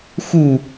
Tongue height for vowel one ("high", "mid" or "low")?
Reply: high